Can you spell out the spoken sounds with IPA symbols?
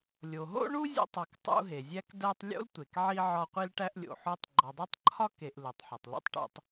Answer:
lʲ o˩ ɦ o̰˥ ɳ u˥ zʲ o̰˦ tˤ ɒ˨ k tˤ ṵ˦ ɦ e˩ zʲ æ˦ k d æ˦ tˤ lʲ o̰˥ l tʷ e˩ k ʕ i˥ ʕ ɒ˦ qʷ i˥ l ʈ æ˦ ʔ lʲ o̰˩ ħ o˦ tˤ ɡ͡ǃ ɒ˨ dˤ æ˥ tˤ ǃʰ ɒ˥ k e˨ ʔ l u˩ tˤ ħ o˩ tˤ l ṵ˦ tˤ ʈ o̰˦ tˤ

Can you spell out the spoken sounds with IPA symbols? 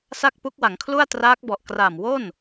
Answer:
s a˥˩ k̚ p u˦˥ k̚ w a˩˦ ŋ kʰ l u˥˩ a̯ t r aː˦˥ k̚ b ɔ˨˩ ʔ k r a˨˩ m w o˥˩ n

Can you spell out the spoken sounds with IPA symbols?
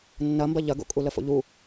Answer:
nː ɐ m b ɐ ʎ ɐ ɡ o̰ kʼ u l ə f o̰ ʎ u

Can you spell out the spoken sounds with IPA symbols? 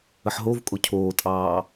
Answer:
ə ħ ɦ o v kʼ o cʰ oː tʼ ɑː

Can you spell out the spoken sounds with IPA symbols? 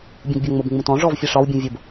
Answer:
bʲ ũ ɡ bʲ ɒ ŋ͡m ʊ b ŋ͡m ũ t ɔ̃ ʐ ɔ v fʲ ɛ ʂ ɒ w bʲ ũ vʲ ʊ b

